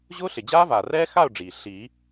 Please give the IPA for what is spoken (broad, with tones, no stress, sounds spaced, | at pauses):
ʑ ʊː˦˥ ɬ ɪ˩ d͡ʑ aː˦˥ v aː˩ r ɛː˦˥ x a˥˨ ʊ̯ ɖ͡ʐ iː˩ ɬ iː˨˩˦